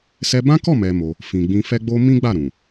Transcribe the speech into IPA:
s ɛ˧ b ã˦ k ɔ˦˨ m ɛ˨ m o˧ | f ĩ˨ ɡ͡b ĩ˧ f ɛ˦ ɡ͡b o˦ m ĩ˦ ɡ͡b a˦˨ ɾ ũ˨

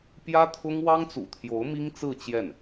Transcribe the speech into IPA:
p j ä˥ t̪ʰ ʊ˥ ŋ w ɑ˥ ŋ t͡s ṵ˨˩ t̪ʰ j o˧˥ ʊ̯ m i˥ ŋ t͡s ɹ̩˥˧ t͡ɕ j ɛ˥˩ n

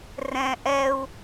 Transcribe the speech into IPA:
r ɛ̃ ʔ ɛ u̯

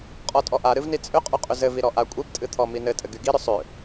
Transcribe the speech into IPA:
qʼ ɔ tʼ ɔ ʔ a ɾ ɨ v n i t͡sʼ ʏ qʼ y qʼ ʏ z ɘ v i ɾ ɔ ʔ a kʷʼ i p tʼ ɨ t̪ʰ ɔ m i n ɘ tʼ ɘ ɡ y ɡ i ɾ ʏ sˤ ʏ

